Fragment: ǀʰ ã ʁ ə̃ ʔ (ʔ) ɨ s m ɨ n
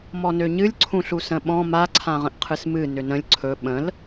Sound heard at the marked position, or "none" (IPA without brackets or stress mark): qʰ